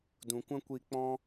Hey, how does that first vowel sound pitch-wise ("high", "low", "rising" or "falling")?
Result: low